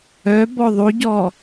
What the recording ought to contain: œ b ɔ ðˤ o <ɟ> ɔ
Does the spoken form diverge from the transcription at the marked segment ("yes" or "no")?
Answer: no